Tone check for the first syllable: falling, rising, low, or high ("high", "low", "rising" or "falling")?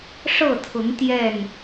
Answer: falling